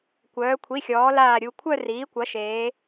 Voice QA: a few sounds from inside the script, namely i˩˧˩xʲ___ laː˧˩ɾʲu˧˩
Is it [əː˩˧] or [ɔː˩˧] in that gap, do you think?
ɔː˩˧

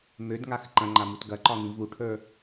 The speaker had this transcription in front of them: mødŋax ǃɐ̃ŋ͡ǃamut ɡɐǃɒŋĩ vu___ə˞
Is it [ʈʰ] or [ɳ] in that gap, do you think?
ʈʰ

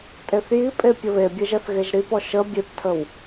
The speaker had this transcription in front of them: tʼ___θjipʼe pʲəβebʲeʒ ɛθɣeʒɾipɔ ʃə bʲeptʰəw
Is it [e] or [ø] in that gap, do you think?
e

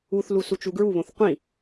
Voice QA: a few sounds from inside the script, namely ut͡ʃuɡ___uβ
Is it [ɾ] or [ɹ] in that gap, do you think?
ɹ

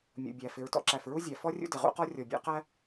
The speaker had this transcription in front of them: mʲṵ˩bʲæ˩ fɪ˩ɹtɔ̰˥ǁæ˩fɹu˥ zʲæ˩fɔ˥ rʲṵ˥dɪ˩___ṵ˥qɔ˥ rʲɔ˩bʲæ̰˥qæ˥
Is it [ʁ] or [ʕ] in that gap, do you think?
ʁ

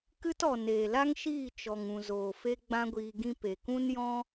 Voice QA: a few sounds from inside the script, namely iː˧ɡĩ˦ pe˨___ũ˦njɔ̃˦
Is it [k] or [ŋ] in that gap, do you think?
k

